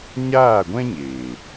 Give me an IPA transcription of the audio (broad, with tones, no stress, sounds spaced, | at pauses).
ɲ aː˦˨ ɡʷ ɛ̃˦ ɲ eː˨